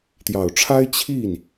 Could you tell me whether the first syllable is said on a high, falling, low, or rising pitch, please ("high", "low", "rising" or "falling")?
low